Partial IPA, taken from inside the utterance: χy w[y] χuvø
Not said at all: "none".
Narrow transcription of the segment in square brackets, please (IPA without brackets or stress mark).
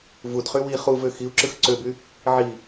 i